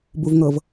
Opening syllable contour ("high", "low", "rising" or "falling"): low